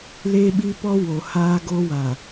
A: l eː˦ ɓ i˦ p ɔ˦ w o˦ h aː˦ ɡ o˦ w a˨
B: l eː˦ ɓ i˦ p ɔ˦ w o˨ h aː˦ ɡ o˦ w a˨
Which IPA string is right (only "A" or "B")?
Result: B